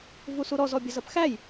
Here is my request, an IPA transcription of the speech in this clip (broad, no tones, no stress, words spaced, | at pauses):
vusuɾɔz ɔbʲɐzɐpxæj